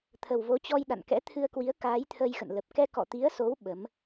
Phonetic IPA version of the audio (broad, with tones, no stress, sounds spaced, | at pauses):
t̪ʰ ə˨˩ w v o˨˦ t͡ɕ ɔ˧ j ɗ a̰˧˨ n k ɛ̰˧˥ t̪ʰ ɨ˧ ə̯ k w i˨˦ ə̯ k aː˨˦ j t̪ʰ ə˧ j x ə̰˧˨ n l ə˨˩ p̚ k ɛ˧ k ɔ̰˧˨ t̪ i˨˦ ə̯ s o˨˦ w ɓ ə˨˦ m